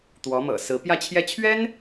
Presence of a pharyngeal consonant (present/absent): absent